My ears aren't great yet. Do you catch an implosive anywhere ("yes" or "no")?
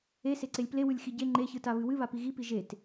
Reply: no